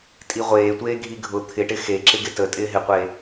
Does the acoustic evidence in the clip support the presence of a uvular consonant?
yes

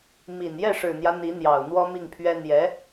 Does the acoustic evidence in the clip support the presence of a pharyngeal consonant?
no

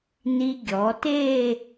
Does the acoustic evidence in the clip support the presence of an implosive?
no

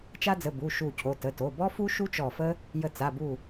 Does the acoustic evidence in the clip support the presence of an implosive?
no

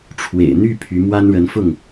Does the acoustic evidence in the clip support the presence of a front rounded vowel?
yes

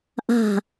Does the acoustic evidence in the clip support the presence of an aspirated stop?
no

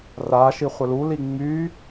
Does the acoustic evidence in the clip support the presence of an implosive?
no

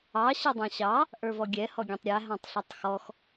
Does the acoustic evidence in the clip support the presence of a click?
no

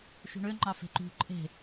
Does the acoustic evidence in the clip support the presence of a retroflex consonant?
yes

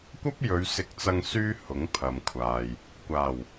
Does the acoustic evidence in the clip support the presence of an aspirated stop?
yes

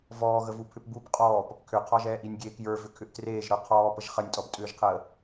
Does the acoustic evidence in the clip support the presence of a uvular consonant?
yes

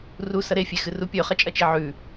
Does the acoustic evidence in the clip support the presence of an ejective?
yes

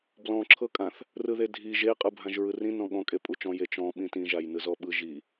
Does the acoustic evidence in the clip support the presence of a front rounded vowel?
no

